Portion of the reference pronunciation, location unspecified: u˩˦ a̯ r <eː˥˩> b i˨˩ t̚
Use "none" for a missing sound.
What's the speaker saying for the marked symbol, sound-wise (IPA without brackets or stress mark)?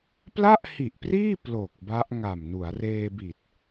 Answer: eː˧